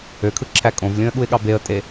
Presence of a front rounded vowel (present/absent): present